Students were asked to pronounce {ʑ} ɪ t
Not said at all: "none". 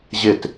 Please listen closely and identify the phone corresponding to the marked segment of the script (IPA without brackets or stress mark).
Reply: ʑ